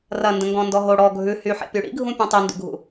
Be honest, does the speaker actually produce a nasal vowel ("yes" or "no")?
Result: yes